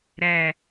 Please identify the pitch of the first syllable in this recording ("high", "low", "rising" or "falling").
falling